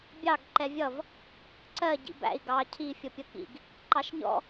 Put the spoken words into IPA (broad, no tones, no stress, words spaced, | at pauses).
bʲɑɡ ǃɛvʲʌv | ǀɜ ɟḭbæ̰i̯ ɡɑ cʰi fʲʌpʲʌkḭɡ | ǃɑʃɲɔ̰